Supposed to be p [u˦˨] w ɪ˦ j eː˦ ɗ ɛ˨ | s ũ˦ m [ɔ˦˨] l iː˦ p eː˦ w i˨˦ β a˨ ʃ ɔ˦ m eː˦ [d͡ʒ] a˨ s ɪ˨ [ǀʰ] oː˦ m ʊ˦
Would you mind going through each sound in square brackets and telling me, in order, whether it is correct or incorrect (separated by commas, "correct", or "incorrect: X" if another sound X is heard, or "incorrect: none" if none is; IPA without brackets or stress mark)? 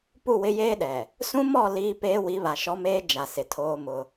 correct, correct, correct, incorrect: tʰ